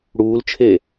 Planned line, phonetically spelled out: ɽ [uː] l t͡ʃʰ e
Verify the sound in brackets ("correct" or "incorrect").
correct